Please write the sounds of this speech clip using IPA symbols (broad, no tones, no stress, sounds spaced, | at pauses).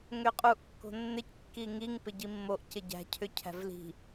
ŋ ʏ qʼ u ʔ kː o̤ nː ɪ c kː i ŋ i ŋ p ɪ ɟ i mː o ʔ c ɪ ɟ æ̤ cʰ ʏ cʰ æ̤ v l i̤